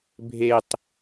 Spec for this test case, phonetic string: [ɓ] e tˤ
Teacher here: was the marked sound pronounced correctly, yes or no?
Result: no